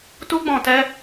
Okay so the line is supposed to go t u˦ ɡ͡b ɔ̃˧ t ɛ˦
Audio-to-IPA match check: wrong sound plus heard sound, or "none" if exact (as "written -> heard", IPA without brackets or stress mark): none